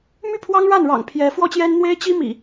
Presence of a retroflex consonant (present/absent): present